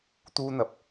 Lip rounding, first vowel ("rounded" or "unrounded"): rounded